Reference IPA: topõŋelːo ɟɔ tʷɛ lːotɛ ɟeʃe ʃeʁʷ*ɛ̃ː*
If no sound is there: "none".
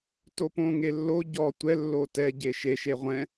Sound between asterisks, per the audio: ɛ̃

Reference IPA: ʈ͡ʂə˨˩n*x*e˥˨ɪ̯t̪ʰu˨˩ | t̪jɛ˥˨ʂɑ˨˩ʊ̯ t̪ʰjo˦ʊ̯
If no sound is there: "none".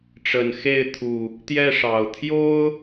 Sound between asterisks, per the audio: x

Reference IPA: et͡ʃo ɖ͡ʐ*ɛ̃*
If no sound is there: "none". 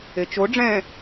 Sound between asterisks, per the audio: ɛ̃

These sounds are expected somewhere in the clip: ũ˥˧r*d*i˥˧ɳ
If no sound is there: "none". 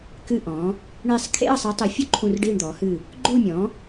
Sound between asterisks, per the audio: ɖ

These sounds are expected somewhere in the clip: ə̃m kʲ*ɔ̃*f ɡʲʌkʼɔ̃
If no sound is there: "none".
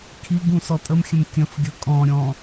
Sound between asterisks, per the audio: ə̃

